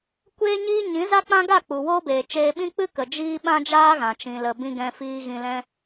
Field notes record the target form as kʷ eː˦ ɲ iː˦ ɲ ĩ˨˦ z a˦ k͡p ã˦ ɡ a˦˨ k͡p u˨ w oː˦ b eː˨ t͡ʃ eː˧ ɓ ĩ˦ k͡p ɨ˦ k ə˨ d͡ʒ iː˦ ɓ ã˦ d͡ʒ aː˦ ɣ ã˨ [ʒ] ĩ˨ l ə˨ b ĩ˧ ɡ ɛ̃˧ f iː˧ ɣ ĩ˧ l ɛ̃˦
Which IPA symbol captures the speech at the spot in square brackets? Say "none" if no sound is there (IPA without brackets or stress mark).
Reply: t͡ʃ